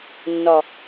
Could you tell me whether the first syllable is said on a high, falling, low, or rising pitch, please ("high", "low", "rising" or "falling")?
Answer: low